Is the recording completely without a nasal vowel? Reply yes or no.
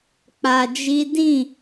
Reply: no